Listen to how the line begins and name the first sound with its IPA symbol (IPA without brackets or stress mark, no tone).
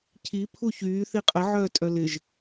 cʰ